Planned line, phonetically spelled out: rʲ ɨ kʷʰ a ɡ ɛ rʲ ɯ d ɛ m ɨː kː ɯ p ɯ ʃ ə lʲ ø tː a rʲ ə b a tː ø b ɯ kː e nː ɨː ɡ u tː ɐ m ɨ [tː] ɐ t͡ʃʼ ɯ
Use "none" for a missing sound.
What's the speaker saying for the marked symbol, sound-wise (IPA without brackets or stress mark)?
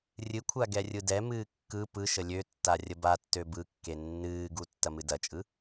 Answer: d